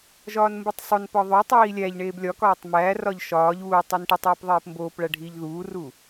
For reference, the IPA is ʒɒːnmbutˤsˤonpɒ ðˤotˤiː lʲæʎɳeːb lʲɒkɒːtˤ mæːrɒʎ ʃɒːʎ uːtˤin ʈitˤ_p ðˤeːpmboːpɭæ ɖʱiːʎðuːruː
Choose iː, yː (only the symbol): iː